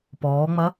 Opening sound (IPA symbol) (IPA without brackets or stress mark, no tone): p